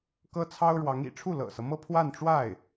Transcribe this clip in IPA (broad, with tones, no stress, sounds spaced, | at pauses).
k ɤ˥ t͡sʰ ɑ˥ ʊ̯ ɻ w ɑ˧˥ ŋ ḭ˨˩ ʈ͡ʂʰ u˥˩ l ɤ̰˨˩ s ɤ˦ m ɤ˥˧ pʰ w a˥˧ n ʈ͡ʂ w a˥˩ ɪ̯